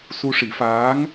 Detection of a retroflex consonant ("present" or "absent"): present